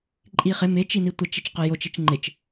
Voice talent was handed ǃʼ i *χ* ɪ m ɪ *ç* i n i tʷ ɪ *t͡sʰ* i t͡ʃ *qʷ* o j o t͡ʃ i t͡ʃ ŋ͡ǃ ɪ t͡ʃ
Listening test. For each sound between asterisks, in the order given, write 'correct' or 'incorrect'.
correct, incorrect, incorrect, incorrect

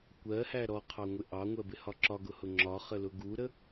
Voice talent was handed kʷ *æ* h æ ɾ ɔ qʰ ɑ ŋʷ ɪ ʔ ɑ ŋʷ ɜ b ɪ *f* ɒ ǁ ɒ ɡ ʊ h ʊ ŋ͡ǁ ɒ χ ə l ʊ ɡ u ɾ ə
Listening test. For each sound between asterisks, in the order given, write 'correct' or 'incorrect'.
incorrect, incorrect

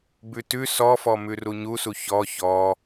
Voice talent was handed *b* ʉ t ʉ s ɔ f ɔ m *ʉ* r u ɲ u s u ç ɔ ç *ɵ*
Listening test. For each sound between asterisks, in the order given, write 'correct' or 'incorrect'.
correct, correct, incorrect

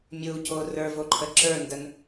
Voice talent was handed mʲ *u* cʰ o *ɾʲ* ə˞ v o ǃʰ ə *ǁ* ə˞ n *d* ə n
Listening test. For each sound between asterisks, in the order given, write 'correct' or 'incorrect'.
correct, incorrect, correct, correct

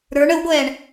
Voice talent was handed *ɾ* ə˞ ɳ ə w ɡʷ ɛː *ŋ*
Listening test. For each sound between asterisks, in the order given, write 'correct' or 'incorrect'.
correct, incorrect

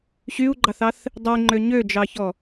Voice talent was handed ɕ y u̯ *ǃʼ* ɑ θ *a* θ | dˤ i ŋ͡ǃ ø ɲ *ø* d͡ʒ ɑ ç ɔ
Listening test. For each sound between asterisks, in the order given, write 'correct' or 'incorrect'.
incorrect, incorrect, correct

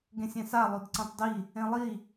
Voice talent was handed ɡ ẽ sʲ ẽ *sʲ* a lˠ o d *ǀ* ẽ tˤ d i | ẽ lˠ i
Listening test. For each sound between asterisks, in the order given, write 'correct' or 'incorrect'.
incorrect, correct

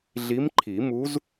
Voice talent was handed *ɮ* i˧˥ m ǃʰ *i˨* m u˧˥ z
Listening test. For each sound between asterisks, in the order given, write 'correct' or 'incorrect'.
correct, incorrect

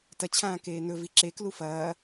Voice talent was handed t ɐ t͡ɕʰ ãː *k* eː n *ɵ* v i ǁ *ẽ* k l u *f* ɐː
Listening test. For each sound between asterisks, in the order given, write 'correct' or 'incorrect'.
correct, correct, incorrect, correct

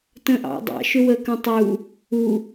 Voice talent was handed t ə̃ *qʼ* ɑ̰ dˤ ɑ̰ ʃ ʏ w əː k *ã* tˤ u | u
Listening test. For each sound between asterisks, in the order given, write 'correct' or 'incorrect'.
incorrect, incorrect

